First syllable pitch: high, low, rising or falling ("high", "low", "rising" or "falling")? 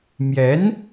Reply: rising